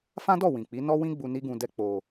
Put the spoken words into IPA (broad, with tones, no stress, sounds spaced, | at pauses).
f ã˦ d ɔ˦˨ w ĩ˨ k͡p i˨˦ n ɔ˦ w ĩ˦ ɡ͡b u˧ n i˦ ɡ ũ˧ d ɛ˦ k͡p o˧